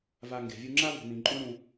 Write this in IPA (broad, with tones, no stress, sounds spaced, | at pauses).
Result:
v a˧ ŋ ɡ e̤˨ vʲ u˧ ŋ͡ǁ a˦ v ṳ˧ n̪ ĩ˧ ǃʼ ũ˦ ɳ ũ˧